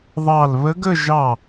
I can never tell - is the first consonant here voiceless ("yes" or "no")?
no